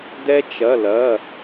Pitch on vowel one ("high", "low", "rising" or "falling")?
high